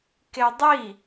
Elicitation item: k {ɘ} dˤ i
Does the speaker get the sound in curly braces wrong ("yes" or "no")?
yes